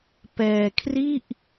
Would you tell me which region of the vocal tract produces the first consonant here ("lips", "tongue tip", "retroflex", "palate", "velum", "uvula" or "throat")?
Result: lips